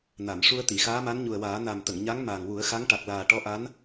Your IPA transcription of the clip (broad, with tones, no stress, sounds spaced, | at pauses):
n a˨˩˨ m ʂ u˧ ə̯ t̪ i˨˩˨ x aː˧˥ m a˧˥ n ɲ u˨˩ ə̯ w aː˨˩˦ n a˨˩ m t̪ ə˨˩˨ ŋ ɲ a˧˥ ŋ m aː˨˩ ŋ w u˨˩˦ ə̯ x a˧˥ ŋ ʈ a˨˩ k̚ l aː˨˩ ʈ ɔ˧˥ ʔ a˧˥ n